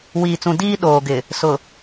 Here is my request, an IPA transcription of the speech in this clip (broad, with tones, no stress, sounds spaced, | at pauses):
w iː˨ t͡s ũ˨ d iː˦ ɗ oː˨ ɡ ɪ˨ | s ʊ˨